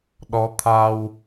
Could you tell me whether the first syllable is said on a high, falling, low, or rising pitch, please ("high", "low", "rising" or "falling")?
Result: rising